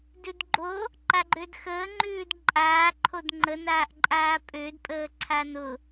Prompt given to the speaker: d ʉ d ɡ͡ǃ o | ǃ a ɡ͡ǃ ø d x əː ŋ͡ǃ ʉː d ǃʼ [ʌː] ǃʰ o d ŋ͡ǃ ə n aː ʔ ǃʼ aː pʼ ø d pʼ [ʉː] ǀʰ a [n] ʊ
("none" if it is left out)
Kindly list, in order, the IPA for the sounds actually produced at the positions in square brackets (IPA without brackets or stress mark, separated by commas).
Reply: aː, əː, n